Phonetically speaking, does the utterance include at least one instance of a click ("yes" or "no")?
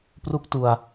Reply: no